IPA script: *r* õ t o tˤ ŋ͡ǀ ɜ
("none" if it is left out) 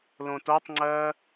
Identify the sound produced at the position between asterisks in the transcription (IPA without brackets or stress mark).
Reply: l